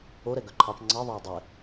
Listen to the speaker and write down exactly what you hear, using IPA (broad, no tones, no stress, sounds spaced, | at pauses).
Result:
o ɾ ɛ ɡ œ ǃʰ ɑ p ŋ͡ǀ ɑ ðˤ æ u̯ dˤ ɛ